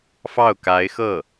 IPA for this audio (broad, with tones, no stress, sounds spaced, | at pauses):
f ɑ˥˩ ʊ̯ k a˧˥ ɪ̯ x ɤ˥˩